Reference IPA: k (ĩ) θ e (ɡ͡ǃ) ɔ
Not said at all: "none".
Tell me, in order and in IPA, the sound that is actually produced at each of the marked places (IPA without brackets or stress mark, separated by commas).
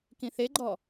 ĩ, ɡ͡ǃ